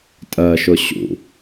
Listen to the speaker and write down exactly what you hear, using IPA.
tʼɜʃʊ ɕṵ

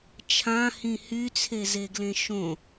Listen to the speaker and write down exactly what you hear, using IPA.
t͡ʃʰãhĩ hyt͡sʰezeɡlẽ ʃõ

